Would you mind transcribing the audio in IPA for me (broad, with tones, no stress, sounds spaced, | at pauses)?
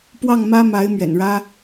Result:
p w ɑ˥˩ ŋ m ä˥ m a˧˥ ɪ̯ m ɥ ɛ̰˨˩ n ɻ ä˥